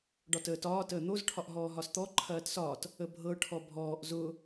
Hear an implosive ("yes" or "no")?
no